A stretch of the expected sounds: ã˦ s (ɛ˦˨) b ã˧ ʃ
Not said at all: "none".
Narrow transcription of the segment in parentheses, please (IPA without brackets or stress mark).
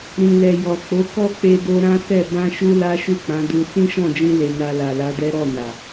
ɛ˦˨